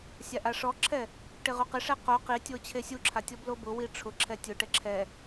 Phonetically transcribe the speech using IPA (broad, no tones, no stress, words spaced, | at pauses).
sʲaʔaʂɔǁʰɛ | ʈɪʁuqɪʂɛ qo qitʲo t͡ɕʰesʲuǁʰa tʲɔblobʊwi ʈ͡ʂʰʊ ǁʰɛtʲʊʈɛ ǁʰɛ